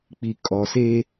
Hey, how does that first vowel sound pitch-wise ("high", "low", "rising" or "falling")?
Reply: low